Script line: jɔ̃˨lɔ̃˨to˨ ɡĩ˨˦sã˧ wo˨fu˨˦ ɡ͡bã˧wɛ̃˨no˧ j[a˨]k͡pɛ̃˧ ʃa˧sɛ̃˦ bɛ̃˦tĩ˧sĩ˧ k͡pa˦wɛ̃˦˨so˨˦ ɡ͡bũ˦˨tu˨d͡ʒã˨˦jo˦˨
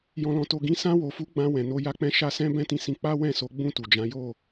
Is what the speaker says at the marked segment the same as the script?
no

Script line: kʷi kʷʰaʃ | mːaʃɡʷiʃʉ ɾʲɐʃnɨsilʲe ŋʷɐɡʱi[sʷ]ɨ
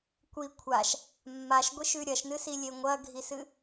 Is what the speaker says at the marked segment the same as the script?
no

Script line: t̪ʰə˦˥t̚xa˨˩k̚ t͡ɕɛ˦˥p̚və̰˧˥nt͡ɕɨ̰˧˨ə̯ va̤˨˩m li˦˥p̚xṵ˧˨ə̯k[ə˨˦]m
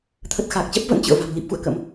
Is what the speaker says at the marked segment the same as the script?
no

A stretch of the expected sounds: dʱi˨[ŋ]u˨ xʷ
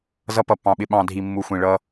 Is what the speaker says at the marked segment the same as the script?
no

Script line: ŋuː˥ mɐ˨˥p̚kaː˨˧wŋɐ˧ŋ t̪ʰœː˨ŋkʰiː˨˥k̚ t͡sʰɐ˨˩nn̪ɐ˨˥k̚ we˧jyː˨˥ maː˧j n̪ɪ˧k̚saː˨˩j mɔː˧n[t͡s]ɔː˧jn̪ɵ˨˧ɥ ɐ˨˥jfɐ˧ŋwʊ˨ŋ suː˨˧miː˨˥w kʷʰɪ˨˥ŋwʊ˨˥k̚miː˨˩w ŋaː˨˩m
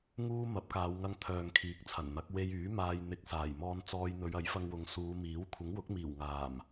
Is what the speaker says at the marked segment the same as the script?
yes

